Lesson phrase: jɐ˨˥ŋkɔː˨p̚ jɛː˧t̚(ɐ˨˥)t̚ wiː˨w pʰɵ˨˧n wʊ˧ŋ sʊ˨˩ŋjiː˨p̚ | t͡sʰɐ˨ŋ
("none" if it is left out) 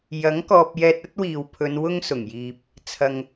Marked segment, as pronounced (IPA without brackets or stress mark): ɐ˥